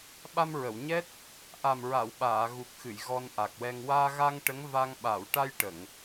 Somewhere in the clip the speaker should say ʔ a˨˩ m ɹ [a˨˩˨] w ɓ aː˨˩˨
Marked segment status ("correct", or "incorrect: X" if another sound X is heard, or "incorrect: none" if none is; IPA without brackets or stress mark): correct